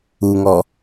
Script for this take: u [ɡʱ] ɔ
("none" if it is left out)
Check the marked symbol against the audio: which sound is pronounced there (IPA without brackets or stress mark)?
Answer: ŋ